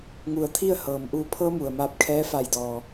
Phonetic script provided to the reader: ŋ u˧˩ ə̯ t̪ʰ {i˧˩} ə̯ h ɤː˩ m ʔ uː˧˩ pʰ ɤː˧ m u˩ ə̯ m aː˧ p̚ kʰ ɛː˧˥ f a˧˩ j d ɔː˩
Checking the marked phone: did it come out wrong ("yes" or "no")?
yes